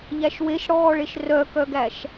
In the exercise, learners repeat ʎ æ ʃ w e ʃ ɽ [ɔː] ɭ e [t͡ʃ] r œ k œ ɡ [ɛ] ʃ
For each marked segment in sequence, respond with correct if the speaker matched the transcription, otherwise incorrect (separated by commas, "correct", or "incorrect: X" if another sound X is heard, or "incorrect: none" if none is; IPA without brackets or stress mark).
correct, incorrect: ʃ, incorrect: æ